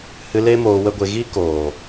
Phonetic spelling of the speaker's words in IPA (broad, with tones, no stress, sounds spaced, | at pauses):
h ɨ˧ l e˦ m oː˧ w ə˦ ɡʷ e˧ ɣ i˦ k oː˨